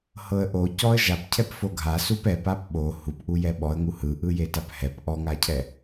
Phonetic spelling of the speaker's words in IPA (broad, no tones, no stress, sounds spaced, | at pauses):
h ɤ ə̯ ʔ o c ɔ ə̯ ʒ a p cʰ ɛ p f o ɡʱ a s u p ɛ p a p ɓ o h u p ʔ u j ɛ ɓ ɔ ə̯ ŋ u h ɯ ʔ ɯ j e t a p h ɛ p ʔ ɔ ŋ a cʰ ɛ